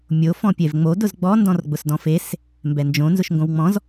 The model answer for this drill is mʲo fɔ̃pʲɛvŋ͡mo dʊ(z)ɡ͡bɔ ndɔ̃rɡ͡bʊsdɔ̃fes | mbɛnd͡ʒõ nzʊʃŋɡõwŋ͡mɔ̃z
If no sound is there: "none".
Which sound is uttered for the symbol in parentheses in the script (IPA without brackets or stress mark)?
z